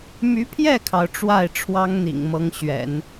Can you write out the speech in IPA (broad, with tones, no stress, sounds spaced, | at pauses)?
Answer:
m y˧˥ pʰ j ɛ˥˩ kʰ ɑ˩ ʊ̯ ʈ͡ʂ w a˥˩ ɪ̯ ʈ͡ʂʰ w ɑ˥ ŋ n̪ ḭ˨˩ ŋ m ɤ˧˥ ŋ ɕ ɥ ɛ̰˨˩˦ n